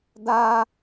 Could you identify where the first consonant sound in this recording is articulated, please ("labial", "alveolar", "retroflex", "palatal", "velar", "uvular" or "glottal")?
alveolar